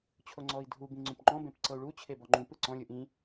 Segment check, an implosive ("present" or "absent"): absent